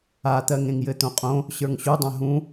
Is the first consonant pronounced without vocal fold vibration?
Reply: yes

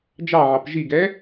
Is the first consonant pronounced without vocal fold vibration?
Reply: no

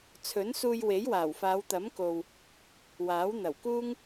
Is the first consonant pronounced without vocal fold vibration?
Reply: yes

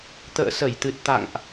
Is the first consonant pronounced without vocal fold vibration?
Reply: yes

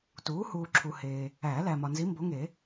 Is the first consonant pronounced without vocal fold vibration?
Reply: yes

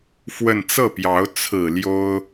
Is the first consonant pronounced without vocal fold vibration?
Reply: yes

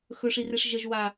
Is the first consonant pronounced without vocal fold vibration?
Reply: yes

